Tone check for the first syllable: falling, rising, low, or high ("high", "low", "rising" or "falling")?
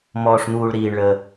low